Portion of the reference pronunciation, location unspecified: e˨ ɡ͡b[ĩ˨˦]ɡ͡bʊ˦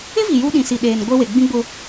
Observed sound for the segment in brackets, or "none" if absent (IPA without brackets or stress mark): ĩ˦